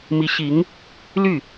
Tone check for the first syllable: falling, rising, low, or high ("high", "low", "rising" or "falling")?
rising